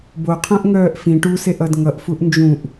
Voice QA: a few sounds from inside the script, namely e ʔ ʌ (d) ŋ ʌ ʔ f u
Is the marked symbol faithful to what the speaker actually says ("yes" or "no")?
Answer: yes